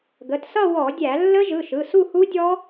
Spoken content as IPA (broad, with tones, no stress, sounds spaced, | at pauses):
ɡ ə˩˧˩ t s ʌ˥˧ w ɔ˧˩˧ dʲ æ˧˩˧ lː ə˦˥ ʒ ɯ˩˧˩ ʃ ɯ˩˧˩ s u˥˧ h u˦˥ dʲ ɔ˦˥